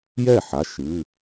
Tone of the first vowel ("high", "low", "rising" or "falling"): falling